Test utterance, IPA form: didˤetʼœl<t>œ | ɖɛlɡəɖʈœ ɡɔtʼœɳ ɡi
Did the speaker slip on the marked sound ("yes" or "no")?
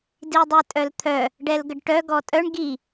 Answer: yes